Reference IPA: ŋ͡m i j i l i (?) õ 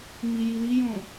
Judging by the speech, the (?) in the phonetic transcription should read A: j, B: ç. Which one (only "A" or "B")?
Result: A